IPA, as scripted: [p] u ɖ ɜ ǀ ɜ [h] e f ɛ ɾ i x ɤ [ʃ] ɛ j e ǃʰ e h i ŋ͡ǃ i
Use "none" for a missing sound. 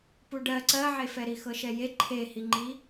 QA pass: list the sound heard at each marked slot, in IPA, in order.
p, ʕ, ʃ

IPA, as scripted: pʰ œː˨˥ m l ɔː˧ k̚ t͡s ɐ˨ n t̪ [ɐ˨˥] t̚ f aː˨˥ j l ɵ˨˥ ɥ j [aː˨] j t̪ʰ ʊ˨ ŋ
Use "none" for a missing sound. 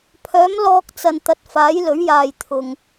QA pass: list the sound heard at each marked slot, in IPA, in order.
ɐ˨˥, aː˨

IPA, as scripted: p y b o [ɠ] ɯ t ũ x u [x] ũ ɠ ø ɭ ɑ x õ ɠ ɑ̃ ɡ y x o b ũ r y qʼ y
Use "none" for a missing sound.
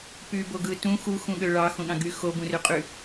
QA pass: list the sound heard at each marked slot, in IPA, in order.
ɡ, x

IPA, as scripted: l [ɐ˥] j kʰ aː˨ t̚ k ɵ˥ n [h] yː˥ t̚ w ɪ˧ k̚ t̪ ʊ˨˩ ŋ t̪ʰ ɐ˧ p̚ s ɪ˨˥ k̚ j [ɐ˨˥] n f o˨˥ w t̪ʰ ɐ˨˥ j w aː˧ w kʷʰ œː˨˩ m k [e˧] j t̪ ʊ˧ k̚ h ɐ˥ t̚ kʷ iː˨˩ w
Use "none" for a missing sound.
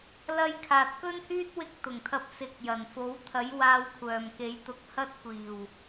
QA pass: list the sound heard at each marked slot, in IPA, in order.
ɐ˥, h, ɐ˨˩, e˨˥

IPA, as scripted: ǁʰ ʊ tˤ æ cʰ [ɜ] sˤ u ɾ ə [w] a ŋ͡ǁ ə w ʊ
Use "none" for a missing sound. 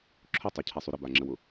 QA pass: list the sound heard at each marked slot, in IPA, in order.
ɛ, b

